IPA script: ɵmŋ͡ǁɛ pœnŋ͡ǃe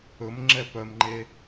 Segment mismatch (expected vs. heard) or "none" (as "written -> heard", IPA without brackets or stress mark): n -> m